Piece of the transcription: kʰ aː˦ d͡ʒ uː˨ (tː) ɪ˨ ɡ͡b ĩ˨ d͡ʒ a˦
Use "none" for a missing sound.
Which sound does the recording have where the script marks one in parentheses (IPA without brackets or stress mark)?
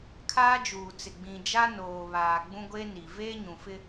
t͡s